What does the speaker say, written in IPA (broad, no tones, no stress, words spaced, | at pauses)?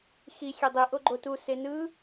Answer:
xi xʲedˤi ʔoɡ͡ǃotu senɯ